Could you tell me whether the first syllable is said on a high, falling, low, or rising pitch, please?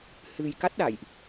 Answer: low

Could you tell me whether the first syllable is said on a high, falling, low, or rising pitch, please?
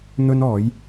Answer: high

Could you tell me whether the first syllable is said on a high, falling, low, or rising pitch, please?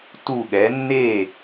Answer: falling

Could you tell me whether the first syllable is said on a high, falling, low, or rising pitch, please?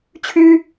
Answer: high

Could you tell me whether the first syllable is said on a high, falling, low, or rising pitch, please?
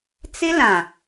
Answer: high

